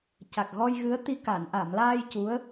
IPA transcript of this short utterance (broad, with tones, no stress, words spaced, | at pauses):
ca˨˩k̚ɣɔ˧jɣɨ˧˥ə̯t̪i˧ ka˨˩˨nʔa˨˩˨mlaː˧j cu˧˥ə̯